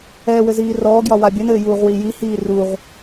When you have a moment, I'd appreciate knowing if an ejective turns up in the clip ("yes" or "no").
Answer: no